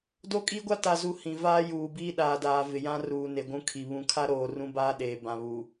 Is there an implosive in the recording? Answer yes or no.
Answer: yes